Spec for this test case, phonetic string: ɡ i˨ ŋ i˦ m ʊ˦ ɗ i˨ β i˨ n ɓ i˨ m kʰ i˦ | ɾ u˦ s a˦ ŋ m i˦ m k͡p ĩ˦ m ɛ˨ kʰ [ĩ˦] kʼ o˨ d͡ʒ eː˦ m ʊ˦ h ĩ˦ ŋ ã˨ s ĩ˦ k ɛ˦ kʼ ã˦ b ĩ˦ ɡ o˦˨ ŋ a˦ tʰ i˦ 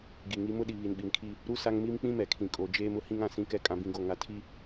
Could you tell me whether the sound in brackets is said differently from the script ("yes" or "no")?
yes